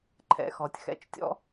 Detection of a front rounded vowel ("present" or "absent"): absent